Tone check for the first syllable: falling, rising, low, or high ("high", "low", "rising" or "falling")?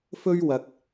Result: high